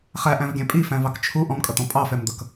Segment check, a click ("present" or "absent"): absent